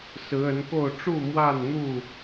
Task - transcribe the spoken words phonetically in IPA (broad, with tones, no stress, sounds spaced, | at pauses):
s ɹ̩˨˦ ə˨˦ n k o˥˨ ʊ̯ ʈ͡ʂ u˥˨ m w a˥˨ n n̪ u˥˨